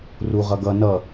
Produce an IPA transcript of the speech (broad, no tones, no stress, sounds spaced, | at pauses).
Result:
r u ʁ ʌ ɡ ʌ n ʌ